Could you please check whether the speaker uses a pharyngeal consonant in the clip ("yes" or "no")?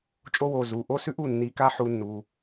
yes